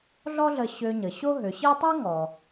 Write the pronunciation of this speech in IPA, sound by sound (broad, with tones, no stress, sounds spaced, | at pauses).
ɮ ɔ˥ ɮ ə˧ ɕ ø˧ ɲ ə˩ ɕ o˥ ɦ ø˩˧ ɕ i˥ tˤ o˥ ŋ ɔ˩